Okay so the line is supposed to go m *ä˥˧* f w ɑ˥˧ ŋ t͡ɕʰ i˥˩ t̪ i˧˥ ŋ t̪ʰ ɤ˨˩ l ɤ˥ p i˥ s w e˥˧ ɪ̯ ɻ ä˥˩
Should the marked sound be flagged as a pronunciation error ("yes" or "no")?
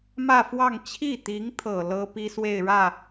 no